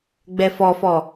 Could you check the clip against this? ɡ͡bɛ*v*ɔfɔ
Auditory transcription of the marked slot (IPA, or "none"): f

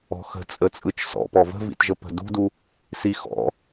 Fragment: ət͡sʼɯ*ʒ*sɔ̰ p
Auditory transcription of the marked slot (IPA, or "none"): t͡ʃ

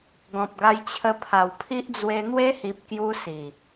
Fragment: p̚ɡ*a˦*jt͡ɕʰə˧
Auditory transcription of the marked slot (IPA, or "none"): a˧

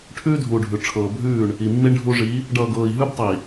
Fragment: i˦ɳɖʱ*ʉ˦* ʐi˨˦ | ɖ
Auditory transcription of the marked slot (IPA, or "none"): u˦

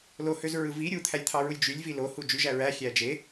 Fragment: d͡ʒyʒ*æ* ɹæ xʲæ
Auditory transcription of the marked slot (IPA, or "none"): æ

